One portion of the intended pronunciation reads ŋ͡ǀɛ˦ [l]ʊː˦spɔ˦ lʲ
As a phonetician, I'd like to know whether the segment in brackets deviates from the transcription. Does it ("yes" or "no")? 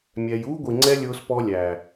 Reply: yes